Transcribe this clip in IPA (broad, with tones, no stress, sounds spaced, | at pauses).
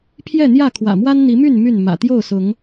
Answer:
pʰ j ɛ˥˨ n̪ j ä˥˨ kʰ w ä̰˨˩ m w a˦ n n̪ i˨˦ m y˥˨ n m y˥˨ n m ä̰˨˩ t̪ j o˥˨ ʊ̯ s ʊ˨˦ ŋ